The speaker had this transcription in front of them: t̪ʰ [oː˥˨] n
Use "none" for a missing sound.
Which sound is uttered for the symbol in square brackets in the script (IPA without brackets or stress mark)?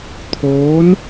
oː˧˥